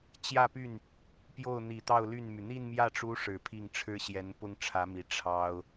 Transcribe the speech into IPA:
t͡ɕjä˥˧py˥˩n | pjo˥˩ʊ̯n̪i˨˩ t̪ɑ˥˧ʊ̯ly˥˩nmy˩ n̪i˥˧nmjä˥˩ʈ͡ʂu˧˥ ʂɻ̩˨˩pʰi˥˩ŋʈ͡ʂʰɻ̩˥ ɕjɛ˧˥npʊ˥ŋʈ͡ʂʰä˧˥mi˨˩ ʈ͡ʂʰɑ˥ʊ̯

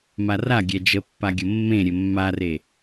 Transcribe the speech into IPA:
maraɡʲɛ d͡ʒəpːaɡʲə mːẽɾʲɘ mːare

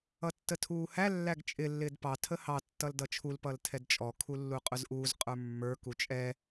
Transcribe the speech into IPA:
ʌtːətʰuːhæ lːæɡt͡ʃʼɪ lːɪːdpɑ tʰəhɑ tːʌldʌt͡ʃʰul pʌltʰɛdt͡ʃʼɔ kʰulːuqʼʊzʔuːz qʼə˞mːə˞ kut͡ʃʼɛ

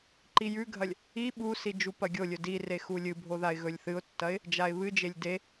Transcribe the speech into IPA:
ǃijʉɡʱɐlʲ | i ɓusi d͡ʒupɐɡʲolʲɵ dire xulʲɨbʱo ðaɪ̯ɣɵlʲθɨʊ̯tːɐɪ̯ | d͡ʒaɪ̯βɨd͡ʒelʲ de

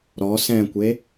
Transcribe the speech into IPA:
ɾɔ sɛ̃kʷe

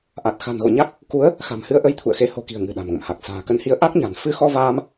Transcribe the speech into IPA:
ʔa˨˩t̚xa̤˨˩nɣo̰˧˨ɲa˦˥k̚ | ku˨˦ə̯ | xa̤˨˩mhɨ˧ə̯ʔə˨˦j t̪ʰṵ˧˨ə̯xe˨˦ ho̤˨˩ki̤˨˩ə̯ ŋɨ̤˨˩ ɗa̤˨˩mŋə̰˧˨mha˨˩k̚ sa̤ː˨˩kə˨˦nhi˨˦ə̯ ʔa˦˥k̚ɲa̤˨˩n fɨ˧xɔ˧vaː˧m

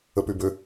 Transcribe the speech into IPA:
əpybø

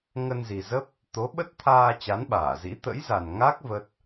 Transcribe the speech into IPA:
ŋə˧nzi˨˩zə˦˥p̚ | t̪o˨˦ ɓə˦˥t̚t̪ʰaː˧ t͡ɕa˨˦nɓaː˧˩zḭ˧˥ t̪ə̰˧˥jza˨˩n ŋa˦˥k̚ və˦˥t̚

